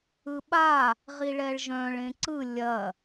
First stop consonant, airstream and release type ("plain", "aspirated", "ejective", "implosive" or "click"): implosive